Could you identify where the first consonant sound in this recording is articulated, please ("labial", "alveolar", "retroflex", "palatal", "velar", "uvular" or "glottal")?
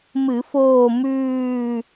labial